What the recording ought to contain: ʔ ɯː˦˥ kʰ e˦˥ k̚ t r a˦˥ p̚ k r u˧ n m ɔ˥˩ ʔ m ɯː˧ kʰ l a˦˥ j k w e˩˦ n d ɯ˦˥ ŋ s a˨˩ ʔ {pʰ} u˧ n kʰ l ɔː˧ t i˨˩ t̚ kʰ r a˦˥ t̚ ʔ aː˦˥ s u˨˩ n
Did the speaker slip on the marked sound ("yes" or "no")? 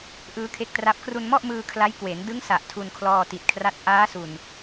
yes